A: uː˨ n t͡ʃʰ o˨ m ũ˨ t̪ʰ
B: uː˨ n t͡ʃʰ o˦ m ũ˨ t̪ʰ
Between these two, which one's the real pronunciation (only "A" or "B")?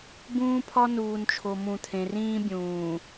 A